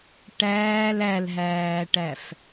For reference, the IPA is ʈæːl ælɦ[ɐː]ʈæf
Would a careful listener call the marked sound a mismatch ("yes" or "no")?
yes